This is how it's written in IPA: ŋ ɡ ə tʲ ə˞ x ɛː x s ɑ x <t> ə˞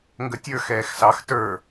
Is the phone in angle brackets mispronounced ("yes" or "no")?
no